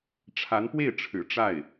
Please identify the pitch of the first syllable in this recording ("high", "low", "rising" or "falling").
rising